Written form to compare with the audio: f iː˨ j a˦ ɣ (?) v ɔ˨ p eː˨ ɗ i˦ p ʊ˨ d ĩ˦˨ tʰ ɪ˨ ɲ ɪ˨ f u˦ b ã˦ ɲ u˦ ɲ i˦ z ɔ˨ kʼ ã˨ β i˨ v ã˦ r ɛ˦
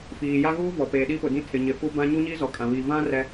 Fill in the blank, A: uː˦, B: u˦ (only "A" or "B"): A